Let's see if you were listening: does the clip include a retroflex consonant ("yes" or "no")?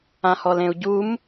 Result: no